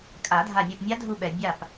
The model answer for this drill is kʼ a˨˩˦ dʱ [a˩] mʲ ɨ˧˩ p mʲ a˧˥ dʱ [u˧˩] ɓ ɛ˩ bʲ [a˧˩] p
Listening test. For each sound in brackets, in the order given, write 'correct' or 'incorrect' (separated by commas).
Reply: incorrect, correct, correct